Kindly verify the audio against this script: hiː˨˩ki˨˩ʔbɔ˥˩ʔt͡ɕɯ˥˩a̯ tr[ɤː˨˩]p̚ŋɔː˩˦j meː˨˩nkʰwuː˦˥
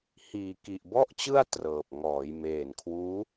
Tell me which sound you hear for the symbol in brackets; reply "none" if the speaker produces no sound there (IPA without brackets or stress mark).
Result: ɤː˨˩